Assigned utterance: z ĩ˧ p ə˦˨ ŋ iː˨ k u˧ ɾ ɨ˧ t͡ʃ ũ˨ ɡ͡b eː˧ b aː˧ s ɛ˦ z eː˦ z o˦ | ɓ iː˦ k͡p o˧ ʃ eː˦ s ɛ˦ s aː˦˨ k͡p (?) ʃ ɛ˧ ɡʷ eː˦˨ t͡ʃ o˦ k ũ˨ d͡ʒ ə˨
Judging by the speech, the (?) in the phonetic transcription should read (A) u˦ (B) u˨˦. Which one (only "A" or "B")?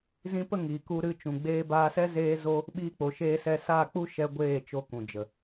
A